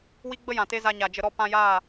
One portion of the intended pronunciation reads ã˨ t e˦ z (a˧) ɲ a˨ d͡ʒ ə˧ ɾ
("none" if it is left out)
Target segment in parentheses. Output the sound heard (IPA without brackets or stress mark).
a˧